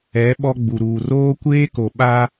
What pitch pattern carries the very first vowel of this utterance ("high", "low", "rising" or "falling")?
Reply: rising